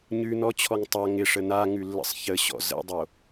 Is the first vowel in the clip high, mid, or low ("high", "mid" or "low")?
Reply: high